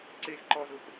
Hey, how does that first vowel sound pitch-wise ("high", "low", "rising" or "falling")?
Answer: high